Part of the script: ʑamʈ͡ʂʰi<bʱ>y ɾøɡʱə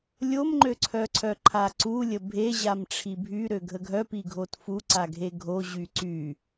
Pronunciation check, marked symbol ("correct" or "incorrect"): correct